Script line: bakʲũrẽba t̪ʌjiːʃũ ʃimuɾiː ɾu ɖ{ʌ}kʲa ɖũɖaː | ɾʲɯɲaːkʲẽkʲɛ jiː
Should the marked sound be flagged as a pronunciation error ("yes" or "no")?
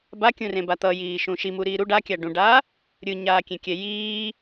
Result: yes